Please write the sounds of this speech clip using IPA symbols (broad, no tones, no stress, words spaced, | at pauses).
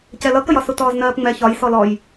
cɛlʌkəjɒ sutɔːznɜːpŋ͡mɛ çɒj sɔlɔj